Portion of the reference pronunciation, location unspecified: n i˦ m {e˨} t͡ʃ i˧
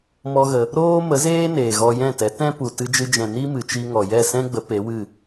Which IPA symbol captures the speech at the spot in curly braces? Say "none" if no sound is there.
ɨ˨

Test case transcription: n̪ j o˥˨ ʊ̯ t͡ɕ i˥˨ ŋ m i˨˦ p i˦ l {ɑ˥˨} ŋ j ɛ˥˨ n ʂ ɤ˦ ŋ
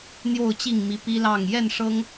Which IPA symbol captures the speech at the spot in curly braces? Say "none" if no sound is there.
ɑ˥˨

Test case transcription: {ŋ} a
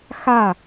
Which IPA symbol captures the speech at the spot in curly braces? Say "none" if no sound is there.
x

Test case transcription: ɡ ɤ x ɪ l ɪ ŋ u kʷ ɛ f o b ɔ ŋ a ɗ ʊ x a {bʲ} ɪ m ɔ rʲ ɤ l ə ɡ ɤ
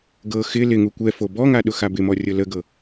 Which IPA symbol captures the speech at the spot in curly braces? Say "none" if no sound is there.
b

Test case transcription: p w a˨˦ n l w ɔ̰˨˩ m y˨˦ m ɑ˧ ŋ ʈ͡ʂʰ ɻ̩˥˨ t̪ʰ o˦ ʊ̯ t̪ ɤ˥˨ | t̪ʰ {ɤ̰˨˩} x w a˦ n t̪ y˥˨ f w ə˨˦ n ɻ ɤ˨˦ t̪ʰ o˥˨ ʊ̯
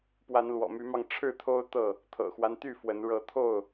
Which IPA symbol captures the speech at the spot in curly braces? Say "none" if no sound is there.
ɤ̰˨˩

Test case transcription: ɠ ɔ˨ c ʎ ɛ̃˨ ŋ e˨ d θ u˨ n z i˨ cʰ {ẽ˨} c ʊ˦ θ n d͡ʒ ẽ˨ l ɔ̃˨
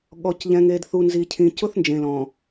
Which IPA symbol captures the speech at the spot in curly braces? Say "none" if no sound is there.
ĩ˨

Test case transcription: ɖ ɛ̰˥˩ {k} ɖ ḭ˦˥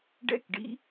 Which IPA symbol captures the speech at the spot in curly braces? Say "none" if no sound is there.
k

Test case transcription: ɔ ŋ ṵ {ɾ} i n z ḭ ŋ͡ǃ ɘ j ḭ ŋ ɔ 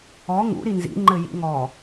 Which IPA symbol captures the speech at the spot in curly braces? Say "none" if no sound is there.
ɾ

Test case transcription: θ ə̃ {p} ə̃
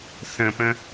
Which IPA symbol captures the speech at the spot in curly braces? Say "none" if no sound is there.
p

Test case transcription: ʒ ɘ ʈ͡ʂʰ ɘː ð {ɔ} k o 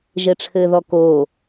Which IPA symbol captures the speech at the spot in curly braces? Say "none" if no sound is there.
ɔ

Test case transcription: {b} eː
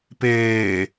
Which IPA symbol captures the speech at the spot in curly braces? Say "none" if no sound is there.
p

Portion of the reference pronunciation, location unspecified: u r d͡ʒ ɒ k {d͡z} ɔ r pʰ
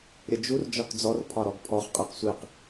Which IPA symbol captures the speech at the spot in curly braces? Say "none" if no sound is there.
d͡z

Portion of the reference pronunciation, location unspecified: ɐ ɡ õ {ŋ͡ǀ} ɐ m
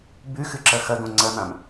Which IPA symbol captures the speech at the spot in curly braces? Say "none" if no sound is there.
ŋ͡ǀ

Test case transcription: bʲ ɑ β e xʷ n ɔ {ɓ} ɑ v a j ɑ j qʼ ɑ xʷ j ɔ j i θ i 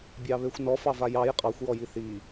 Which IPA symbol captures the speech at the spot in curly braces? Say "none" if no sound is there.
f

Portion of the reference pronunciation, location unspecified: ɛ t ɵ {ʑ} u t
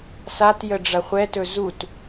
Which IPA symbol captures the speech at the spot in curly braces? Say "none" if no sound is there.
z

